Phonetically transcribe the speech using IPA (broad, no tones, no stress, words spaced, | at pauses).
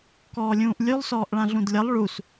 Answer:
kɔːlʲũːʔlʲʉlˠ sɔːʔɭãɮũdlʲʌlˠ ɭus